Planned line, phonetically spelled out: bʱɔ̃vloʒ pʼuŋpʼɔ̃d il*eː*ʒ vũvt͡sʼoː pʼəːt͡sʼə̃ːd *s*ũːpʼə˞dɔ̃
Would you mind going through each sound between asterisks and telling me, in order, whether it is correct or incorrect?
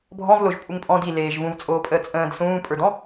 correct, correct

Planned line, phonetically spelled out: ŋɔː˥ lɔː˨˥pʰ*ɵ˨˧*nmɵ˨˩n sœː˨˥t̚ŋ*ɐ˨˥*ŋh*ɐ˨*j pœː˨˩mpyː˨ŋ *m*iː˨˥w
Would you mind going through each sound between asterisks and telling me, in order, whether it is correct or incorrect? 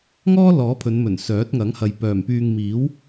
correct, correct, correct, correct

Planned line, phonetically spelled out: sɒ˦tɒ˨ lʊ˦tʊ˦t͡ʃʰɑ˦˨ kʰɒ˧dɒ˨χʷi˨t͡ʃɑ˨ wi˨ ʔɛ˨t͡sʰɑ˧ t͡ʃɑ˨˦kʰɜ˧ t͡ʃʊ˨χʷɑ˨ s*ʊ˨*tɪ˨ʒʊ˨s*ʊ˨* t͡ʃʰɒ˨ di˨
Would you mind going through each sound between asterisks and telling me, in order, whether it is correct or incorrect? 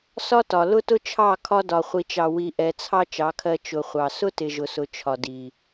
incorrect: ʊ˦, correct

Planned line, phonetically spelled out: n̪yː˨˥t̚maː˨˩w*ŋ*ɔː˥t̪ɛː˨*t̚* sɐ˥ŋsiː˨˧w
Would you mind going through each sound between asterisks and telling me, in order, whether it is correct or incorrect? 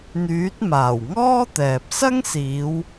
correct, incorrect: p̚

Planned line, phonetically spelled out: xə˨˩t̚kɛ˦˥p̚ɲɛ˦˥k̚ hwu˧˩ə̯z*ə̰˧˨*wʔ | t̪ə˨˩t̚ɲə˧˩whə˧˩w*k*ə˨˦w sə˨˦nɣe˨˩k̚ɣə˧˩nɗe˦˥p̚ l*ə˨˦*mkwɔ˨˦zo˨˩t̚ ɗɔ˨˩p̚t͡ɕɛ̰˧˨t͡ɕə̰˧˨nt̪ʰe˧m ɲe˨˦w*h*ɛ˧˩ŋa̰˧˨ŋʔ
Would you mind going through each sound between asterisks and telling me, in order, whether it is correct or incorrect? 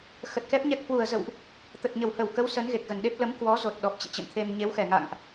correct, correct, correct, incorrect: x

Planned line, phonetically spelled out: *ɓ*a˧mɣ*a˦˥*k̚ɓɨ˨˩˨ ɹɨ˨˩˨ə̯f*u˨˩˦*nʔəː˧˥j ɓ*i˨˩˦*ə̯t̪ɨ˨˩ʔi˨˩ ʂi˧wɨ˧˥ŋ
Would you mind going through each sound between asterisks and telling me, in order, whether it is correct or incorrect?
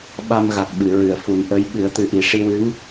correct, incorrect: a˨˩, correct, incorrect: ɨ˨˩˦

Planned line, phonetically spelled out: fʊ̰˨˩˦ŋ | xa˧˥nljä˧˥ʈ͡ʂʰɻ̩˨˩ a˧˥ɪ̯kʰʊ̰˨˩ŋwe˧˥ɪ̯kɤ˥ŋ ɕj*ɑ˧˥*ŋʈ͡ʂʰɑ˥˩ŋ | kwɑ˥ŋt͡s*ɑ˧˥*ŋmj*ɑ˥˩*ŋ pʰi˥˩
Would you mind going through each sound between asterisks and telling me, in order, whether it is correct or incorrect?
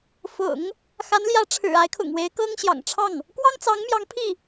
incorrect: ɑ̰˨˩, correct, incorrect: ɑ˧˥

